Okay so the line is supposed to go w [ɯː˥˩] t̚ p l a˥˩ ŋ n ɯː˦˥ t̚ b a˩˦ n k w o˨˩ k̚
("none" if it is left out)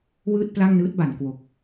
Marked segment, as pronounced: ɯː˥˩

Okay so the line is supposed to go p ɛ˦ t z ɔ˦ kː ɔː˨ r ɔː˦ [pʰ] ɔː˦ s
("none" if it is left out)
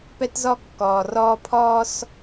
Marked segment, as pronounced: pʰ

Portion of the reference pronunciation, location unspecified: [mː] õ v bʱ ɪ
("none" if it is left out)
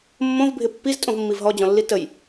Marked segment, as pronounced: mː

